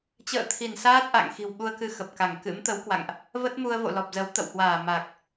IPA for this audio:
t͡ɕ ə̰ː˧˨ t̪ʰ i˧˩ n s aː˦˥ t̚ ʔ a̰˧˨ ŋ x i̤˨˩ w ɓ u˧ ə̯ k ɨ˧ x ə˨˩ p̚ k a˧˩ ŋ k ɨ̰˧˥ m t̪ ə˨˦ w k w a̰˧˨ ŋ ʔ | v ə˦˥ t̚ m u˧ ə̯ v o̰˧˨ l ɔ˨˩ p̚ z ə˨˦ w t̪ ə̰˧˨ w h w aː˧˩ m a˨˩ k̚

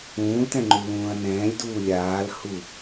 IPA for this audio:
ũː l t ɛ̃ ŋ͡ǃ u l ũː ɐ̯ n ɛ̃ː lʲ d uː lʲ aː l h u

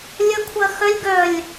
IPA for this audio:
lʲ ə kʷʰ ɐ x œ lʲ ɡ œ lʲ

